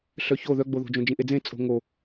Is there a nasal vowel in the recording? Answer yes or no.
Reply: yes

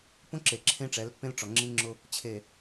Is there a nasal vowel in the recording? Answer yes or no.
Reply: yes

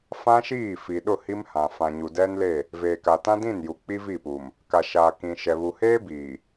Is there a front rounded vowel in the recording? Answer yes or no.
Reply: no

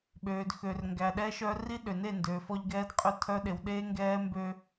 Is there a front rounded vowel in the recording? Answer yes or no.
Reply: yes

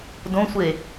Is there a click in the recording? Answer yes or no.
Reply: no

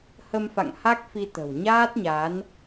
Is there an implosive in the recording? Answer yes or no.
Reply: no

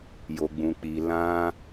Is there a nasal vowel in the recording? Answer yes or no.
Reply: yes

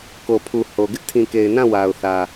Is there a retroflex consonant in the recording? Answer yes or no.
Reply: no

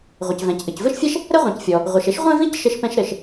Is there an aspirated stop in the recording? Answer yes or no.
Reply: no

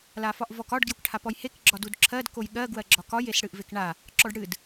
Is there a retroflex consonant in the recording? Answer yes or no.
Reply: yes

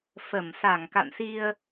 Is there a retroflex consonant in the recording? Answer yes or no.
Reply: no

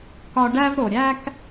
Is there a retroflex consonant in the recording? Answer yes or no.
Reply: yes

